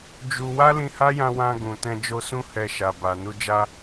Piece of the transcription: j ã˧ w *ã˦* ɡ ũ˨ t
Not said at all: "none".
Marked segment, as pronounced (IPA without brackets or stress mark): ã˧